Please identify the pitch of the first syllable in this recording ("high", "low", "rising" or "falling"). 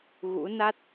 rising